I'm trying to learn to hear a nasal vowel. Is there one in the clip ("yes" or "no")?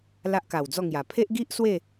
no